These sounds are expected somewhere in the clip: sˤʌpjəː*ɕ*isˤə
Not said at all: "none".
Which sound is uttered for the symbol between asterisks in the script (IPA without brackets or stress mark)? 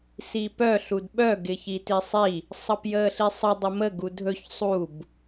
ɬ